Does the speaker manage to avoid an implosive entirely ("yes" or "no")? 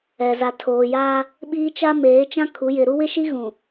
no